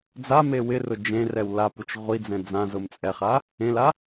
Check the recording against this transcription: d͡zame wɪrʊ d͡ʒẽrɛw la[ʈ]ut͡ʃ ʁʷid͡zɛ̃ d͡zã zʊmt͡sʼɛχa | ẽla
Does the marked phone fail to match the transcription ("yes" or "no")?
yes